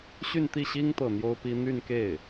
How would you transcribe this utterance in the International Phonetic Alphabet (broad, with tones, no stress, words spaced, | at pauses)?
ɕy˥˧nt̪i˥˩ɕi˥ŋ t̪ɤ˥˩n̪jo˥ʊ̯pi˥ n̪y˥˧nke˥˩ɪ̯